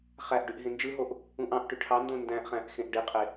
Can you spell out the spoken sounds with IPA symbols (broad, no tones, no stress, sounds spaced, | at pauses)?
χ æ ʔ ɖ y ʔ ɦ ẽ n d͡ʒ ɯ ɦ o ʔ | ũ ʔ ɑ̃ ʔ ʈ y ʈʰ ɑ n d õ n d æ̃ ʔ χ æ̃ ʔ x ẽ ʔ ɖ i qʼ e